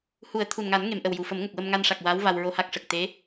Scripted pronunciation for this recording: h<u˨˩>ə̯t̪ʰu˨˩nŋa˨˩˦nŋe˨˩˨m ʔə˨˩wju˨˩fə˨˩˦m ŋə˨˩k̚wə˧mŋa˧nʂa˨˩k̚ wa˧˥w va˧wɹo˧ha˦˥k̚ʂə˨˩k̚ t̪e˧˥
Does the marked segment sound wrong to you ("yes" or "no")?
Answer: yes